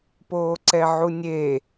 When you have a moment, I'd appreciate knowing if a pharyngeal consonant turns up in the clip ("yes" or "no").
yes